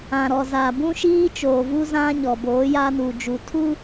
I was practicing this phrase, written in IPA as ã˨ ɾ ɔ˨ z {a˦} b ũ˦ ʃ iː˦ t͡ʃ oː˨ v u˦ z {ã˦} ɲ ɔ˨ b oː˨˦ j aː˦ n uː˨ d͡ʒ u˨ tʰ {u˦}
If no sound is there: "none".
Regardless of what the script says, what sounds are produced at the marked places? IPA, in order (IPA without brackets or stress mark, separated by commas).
a˨, ã˦, u˦